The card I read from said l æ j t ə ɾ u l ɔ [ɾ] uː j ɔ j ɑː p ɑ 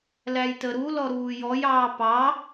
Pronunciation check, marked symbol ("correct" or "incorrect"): correct